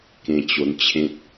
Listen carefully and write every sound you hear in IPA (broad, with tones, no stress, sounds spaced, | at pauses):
k ẽ˧ t͡ɕ o˧ n t͡ɕʰ ẽ˦ t̚